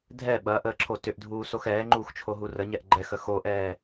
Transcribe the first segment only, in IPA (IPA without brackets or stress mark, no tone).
dʱ